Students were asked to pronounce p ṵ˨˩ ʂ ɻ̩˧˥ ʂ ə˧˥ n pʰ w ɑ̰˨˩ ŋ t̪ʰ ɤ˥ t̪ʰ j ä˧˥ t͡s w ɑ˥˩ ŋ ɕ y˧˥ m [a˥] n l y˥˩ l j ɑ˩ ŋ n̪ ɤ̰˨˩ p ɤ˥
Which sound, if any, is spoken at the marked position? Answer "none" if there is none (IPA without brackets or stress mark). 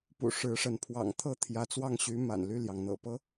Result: a̰˨˩